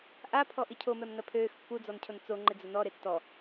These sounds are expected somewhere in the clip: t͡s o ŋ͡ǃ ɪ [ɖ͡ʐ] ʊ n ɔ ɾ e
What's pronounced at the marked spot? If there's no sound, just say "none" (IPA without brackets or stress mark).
d͡z